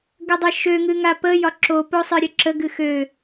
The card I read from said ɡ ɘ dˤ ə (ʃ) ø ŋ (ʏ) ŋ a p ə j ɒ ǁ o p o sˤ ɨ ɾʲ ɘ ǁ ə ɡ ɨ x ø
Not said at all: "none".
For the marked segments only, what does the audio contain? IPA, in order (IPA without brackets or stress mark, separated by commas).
ʃ, ɨ